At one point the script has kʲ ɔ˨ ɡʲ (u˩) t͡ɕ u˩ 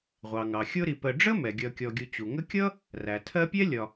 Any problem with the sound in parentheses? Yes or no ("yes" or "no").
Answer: yes